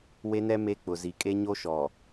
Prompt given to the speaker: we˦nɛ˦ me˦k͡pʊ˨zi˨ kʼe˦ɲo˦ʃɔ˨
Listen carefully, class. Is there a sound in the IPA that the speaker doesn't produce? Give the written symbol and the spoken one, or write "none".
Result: none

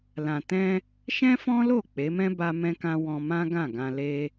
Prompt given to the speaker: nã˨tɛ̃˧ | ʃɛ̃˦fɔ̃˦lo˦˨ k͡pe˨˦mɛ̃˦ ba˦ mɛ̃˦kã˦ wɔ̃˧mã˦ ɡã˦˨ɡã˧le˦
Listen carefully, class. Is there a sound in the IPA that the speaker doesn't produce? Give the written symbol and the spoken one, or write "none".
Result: n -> l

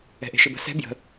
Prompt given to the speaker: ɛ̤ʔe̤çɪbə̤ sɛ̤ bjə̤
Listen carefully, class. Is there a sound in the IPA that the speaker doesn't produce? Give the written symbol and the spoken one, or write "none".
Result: ç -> ʃ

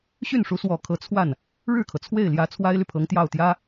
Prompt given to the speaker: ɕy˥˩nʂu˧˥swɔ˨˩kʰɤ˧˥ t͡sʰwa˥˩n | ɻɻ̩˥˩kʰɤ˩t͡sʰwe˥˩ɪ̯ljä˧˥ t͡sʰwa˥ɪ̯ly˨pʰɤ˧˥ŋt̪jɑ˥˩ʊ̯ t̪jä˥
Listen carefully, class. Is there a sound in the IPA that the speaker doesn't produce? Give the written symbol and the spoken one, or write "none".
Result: none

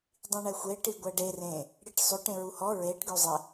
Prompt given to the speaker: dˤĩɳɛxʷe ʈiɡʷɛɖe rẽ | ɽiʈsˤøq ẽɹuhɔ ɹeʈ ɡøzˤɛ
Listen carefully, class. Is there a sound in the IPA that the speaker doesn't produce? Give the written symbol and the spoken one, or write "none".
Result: q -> ʈ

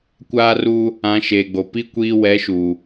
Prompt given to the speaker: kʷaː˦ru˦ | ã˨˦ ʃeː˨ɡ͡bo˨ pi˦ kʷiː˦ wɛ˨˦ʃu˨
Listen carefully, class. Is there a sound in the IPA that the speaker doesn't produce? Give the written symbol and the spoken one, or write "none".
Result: none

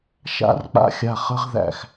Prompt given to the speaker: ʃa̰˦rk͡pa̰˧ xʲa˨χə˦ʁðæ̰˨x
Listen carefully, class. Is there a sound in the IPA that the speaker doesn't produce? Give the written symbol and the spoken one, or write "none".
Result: none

